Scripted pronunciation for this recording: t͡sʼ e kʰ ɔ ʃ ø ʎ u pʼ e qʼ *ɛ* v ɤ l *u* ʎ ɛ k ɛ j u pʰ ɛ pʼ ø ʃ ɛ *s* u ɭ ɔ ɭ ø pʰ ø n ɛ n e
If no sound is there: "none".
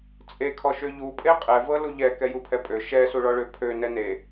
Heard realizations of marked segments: ɛ, u, s

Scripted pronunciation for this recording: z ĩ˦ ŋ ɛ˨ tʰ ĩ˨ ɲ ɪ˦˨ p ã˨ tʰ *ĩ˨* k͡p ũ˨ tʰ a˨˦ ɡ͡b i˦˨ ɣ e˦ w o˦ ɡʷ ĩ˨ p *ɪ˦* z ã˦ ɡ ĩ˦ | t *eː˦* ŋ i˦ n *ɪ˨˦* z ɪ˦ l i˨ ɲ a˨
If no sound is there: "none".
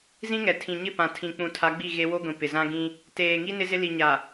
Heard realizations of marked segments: ĩ˨, ɪ˨, eː˨, ɪ˦

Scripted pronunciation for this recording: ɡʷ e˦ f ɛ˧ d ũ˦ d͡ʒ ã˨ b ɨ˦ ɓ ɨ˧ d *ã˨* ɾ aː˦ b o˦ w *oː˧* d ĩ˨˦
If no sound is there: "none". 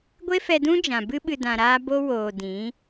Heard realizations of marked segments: ã˧, oː˨

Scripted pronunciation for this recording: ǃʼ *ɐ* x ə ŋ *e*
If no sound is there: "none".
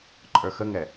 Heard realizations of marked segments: ə˞, ɛ

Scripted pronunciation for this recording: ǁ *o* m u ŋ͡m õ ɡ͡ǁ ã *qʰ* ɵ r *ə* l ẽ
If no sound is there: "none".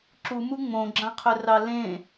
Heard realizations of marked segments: u, qʰ, ɑ

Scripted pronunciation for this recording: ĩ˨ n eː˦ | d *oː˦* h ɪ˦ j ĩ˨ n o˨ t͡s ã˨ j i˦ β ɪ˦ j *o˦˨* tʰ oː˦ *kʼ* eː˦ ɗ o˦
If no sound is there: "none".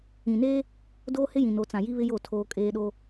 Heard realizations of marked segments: oː˦, o˦˨, kʼ

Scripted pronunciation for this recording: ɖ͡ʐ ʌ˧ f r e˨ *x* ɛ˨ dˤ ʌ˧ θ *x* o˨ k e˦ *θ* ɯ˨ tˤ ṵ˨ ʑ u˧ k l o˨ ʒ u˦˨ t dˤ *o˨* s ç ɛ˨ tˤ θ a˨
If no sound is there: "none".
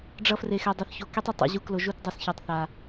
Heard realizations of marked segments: x, ç, tˤ, o˨

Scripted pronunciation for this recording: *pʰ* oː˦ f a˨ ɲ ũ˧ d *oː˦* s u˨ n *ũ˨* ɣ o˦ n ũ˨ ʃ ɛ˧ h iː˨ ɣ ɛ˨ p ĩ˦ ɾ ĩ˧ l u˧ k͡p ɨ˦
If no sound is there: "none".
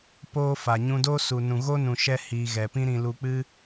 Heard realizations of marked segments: p, oː˦, ũ˨

